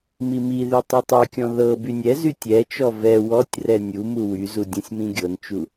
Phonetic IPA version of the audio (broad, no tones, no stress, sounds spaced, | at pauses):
m i m i ð y tˤ u tˤ ɛ kʲ ɔ̃ ð ɤ b y nʲ ɛ z y tʲ ɛ t͡ʃ ɔ v ɛ w ɔ tʲ r ɛ nʲ u m u w y z u dʲ ũ sʲ m ĩ ɡʲ ɤ n t͡ʃ u